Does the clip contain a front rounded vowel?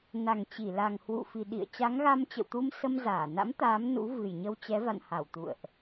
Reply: no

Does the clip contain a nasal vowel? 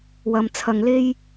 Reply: no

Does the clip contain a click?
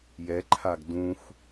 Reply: yes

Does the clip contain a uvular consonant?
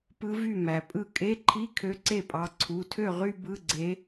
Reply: yes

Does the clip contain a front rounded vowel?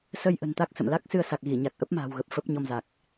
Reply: no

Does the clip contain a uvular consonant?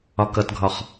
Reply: yes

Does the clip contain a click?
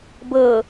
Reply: no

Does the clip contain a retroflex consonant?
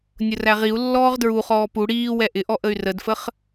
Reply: yes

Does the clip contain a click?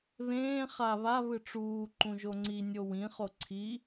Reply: yes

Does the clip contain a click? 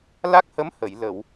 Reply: no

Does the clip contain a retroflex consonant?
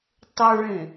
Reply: yes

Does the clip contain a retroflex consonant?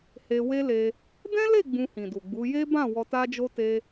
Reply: no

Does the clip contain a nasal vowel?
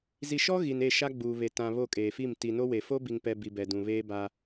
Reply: yes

